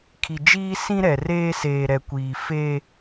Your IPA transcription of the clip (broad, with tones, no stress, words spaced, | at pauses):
kʰi˨ d͡ʒiː˦sĩ˦ ɾɛ˨reː˦ seː˨ɾɛ˨kʷiː˨ feː˦